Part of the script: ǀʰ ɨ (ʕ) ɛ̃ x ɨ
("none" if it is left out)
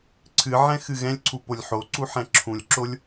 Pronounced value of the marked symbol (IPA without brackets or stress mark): ʕ